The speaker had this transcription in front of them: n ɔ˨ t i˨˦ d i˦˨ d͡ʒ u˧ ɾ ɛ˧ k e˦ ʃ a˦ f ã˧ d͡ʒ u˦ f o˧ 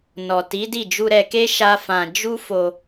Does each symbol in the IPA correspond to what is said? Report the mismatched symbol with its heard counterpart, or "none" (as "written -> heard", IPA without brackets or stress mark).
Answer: none